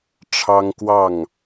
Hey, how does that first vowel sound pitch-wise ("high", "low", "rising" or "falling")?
high